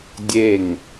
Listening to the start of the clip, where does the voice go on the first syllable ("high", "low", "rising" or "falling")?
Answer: falling